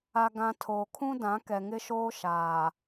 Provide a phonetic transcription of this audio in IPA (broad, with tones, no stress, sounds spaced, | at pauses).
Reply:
a˨ ɡ ã˨ tʰ oː˨ kʰ ũ˦ d ã˨˦ k ɛ˨ ŋ ɪ˦ ʃ oː˦ ʃ aː˨